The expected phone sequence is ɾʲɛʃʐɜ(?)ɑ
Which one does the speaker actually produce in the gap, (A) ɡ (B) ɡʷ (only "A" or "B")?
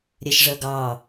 A